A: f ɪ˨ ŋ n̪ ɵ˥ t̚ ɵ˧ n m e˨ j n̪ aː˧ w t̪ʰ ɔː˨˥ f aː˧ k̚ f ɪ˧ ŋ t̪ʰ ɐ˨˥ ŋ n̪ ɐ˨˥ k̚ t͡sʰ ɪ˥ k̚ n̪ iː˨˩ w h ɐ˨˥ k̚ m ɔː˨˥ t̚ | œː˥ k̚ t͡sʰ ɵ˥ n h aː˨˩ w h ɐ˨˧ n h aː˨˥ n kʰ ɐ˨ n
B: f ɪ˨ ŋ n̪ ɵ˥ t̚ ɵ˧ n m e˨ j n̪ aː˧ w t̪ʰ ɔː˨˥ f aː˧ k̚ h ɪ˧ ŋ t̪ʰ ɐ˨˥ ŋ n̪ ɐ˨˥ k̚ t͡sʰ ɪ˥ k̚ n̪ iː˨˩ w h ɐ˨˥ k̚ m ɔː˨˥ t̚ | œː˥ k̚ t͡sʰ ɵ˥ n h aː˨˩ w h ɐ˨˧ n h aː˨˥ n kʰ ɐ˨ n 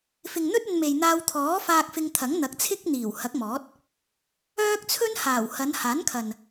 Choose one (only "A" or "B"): A